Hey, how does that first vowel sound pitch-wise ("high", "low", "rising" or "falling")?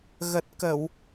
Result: low